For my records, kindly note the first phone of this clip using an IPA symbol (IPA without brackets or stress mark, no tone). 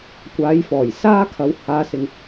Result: kʷ